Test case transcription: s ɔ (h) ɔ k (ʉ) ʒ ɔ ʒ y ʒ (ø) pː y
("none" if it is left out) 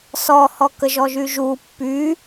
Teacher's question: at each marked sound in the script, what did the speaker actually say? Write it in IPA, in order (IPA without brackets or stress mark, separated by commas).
h, ə, u